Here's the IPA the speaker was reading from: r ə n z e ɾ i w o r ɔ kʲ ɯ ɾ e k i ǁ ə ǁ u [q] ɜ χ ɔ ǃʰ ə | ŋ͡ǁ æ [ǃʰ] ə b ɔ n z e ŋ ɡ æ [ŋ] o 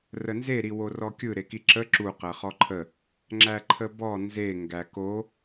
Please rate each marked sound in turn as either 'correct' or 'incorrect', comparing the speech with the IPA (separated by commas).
correct, correct, incorrect